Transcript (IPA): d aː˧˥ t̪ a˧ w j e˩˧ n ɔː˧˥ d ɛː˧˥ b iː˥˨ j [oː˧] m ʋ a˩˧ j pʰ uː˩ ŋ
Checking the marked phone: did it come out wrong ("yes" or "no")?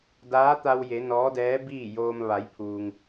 no